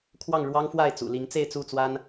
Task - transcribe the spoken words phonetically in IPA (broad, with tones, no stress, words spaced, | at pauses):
kʰwɑ˥˨ŋɻwɑ˦ŋ fwa˥˨ɪ̯t͡sṵ˨˩li˨˦ŋt͡se˥˨ɪ̯ t͡su˥˨t͡swa˦n